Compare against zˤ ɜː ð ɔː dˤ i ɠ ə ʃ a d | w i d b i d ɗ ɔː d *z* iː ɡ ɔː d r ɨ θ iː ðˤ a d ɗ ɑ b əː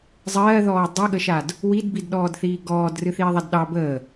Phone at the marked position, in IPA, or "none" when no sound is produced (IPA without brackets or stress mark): θ